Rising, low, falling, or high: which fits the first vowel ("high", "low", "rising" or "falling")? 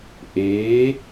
rising